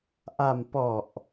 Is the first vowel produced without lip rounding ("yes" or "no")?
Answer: yes